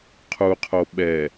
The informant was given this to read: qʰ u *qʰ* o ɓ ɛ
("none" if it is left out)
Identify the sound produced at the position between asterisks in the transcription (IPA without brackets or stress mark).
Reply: qʰ